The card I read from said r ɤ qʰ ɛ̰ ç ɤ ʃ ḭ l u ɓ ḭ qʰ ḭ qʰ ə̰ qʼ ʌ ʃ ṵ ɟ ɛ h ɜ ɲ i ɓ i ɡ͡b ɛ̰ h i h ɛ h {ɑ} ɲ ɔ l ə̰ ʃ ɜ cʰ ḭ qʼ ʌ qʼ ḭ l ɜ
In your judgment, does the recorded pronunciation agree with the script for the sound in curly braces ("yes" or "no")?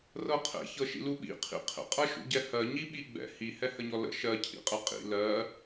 no